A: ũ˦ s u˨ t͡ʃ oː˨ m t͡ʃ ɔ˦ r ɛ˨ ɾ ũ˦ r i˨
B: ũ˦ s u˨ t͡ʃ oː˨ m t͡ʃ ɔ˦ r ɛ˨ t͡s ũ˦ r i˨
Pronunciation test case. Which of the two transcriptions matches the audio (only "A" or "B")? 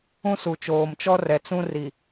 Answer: B